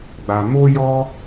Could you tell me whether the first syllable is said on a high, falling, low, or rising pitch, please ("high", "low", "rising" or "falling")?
low